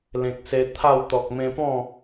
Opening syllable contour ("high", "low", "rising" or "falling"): low